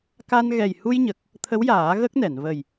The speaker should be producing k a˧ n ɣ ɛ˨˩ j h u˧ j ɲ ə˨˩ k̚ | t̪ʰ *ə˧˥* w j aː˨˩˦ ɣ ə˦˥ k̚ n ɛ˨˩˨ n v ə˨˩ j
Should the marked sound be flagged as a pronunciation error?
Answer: no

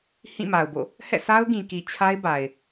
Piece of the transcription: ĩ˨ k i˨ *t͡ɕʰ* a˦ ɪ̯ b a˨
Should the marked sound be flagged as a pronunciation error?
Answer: no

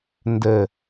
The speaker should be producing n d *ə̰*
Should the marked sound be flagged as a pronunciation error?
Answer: yes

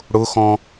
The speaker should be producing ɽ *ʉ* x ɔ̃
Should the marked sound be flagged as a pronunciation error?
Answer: yes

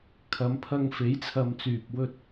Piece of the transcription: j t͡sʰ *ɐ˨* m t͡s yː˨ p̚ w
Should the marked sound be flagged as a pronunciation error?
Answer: no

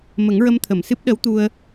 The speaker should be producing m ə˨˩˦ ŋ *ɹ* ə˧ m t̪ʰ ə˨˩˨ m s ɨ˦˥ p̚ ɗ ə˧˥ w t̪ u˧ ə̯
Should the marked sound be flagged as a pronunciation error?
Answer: no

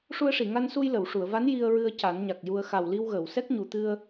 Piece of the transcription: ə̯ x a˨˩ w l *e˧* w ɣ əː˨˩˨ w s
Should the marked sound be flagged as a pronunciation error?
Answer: yes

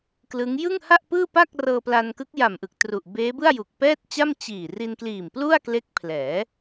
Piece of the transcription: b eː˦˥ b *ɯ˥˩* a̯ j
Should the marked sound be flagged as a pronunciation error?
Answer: no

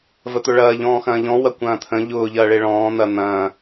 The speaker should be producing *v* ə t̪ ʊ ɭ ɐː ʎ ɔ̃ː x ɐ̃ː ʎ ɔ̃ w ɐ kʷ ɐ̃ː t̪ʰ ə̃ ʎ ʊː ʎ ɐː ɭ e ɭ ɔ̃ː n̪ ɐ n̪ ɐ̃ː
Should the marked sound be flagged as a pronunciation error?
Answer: no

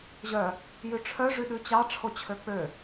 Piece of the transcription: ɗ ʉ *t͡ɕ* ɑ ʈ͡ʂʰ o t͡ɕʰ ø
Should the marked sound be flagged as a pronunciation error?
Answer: no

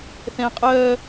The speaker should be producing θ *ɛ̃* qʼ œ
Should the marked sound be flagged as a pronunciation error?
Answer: no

